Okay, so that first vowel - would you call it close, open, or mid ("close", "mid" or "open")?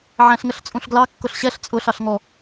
open